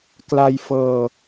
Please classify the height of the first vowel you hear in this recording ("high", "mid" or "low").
low